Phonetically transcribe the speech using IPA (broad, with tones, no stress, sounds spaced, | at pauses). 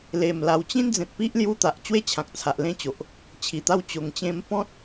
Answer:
l e˨˩ m l a˨˩ w t͡ɕ ĩ˦ n d͡z ẽ˨ t̚ p i˦ ʔ l j u˦ t̪ a˨ ʔ t͡ɕ w e˥˧ t͡ɕʰ ã˨ k̚ t͡sʰ a˨ ʔ l ẽ˥˧ t͡ɕ o˨ ʔ | t͡ɕʰ i˨˩ t̪ a˥˧ w t͡ɕ o˧ ŋ t͡ɕ ẽ˦ m p ɔ̃˦ t̚